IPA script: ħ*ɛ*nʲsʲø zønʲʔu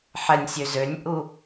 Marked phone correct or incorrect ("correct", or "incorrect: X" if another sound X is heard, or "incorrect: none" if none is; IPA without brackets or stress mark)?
correct